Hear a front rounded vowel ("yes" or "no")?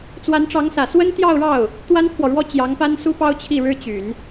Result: yes